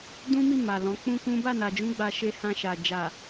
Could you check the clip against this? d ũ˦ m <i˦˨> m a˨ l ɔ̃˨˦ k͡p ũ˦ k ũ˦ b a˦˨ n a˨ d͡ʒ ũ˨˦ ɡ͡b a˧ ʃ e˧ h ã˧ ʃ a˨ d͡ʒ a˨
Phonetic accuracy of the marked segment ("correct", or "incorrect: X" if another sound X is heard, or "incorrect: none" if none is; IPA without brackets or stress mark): correct